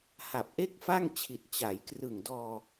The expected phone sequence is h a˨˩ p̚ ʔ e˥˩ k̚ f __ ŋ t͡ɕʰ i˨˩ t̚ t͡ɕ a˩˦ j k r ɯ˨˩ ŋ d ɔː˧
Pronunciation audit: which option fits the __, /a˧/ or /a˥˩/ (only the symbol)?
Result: a˥˩